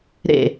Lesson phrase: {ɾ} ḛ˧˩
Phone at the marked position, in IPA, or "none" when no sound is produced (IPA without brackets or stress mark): ɾ